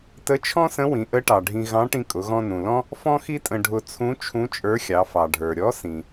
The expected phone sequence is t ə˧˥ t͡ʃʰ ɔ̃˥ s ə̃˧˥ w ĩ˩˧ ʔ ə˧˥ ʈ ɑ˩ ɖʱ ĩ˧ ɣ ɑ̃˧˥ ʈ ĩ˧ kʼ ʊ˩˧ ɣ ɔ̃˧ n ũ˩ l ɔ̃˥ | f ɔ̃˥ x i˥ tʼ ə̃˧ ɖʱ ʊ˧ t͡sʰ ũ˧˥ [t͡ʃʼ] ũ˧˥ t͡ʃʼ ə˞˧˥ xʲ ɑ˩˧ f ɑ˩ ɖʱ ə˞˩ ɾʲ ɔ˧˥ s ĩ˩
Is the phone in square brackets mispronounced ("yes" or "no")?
yes